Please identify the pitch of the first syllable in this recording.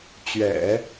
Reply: low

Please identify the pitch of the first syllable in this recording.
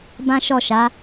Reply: high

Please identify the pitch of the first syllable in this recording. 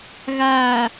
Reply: low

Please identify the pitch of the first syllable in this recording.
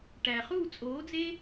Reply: low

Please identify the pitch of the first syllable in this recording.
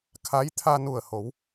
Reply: rising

